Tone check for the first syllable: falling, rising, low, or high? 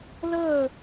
falling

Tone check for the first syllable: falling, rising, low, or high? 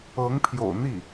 rising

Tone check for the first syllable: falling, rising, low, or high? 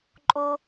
high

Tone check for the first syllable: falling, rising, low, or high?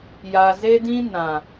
low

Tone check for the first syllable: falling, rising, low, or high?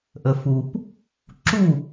low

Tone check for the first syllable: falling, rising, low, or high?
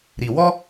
low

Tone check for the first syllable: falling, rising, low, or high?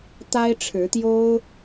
high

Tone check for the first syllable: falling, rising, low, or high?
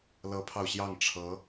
rising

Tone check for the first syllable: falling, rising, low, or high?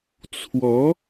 rising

